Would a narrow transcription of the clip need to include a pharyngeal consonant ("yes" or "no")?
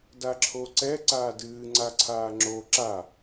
no